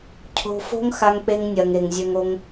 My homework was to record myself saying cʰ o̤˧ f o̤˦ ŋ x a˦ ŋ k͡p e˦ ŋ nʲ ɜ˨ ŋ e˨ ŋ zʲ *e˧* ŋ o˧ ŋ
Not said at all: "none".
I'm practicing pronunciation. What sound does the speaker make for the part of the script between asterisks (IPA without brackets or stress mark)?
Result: ø˧